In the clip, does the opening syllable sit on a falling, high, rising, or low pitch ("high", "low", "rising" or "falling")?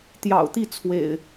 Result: low